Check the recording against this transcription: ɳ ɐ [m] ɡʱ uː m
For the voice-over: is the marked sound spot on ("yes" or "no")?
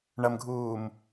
yes